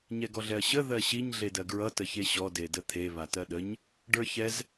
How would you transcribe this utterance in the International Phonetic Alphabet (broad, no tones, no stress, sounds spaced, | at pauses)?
ɲ ɛ ɡ ɔ ɮ ɛ ɐ̯ ɕ ə ð ɜ ɕ i ɲ ɮ e d ɜ ɡ ɹ ʌ t ə ç e ɕ ɔ d e d ə t̪ʰ e β a t ɜ ɗ ə ɲ | ɖ ə˞ ç ɛ z